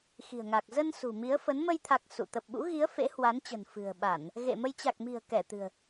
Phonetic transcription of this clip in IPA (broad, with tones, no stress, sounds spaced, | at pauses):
x i̤˨˩ ə̯ ŋ a˨˩ k̚ z ə˧ n s ṳ˨˩ m i˨˦ ə̯ f ə˨˦ n m ə˧ j t̪ʰ a˨˩ k̚ s ṵ˧˨ t̪ ə˨˩ p̚ ɓ ṵ˧˥ ɣ i˨˦ ə̯ f ḛ˧˥ h w a˨˦ n t͡ɕ ə̤˨˩ n f ɨ̤˨˩ ə̯ ɓ a˧˩˨ n | ɣ ḛ˧˨ m ə˧ j t͡ɕ a˨˩ k̚ m i̤˨˩ ə̯ k ɛ˧˩ t̪ ɨ̤˨˩ ə̯